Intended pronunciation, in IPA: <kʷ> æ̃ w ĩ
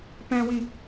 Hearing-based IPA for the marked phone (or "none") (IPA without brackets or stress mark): p